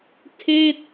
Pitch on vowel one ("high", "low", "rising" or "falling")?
falling